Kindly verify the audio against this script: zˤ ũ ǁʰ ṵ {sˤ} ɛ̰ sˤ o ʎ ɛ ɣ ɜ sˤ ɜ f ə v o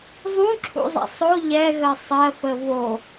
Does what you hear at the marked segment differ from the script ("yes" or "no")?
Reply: yes